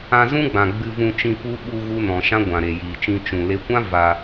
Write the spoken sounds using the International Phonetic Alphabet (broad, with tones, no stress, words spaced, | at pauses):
ã˧zũ˦ɡ͡bã˨ ɡ͡bɨ˧vũ˧t͡ʃĩ˧ pu˦ ɓu˧ ɣu˦nɔ̃˨ ʃã˦ɡʷã˨ɾe˨ jiː˨t͡ʃĩ˧ t͡ʃũ˨le˦ kʷã˦ va˧